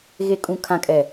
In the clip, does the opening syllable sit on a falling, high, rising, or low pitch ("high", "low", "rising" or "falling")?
low